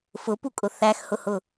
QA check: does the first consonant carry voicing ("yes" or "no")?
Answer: no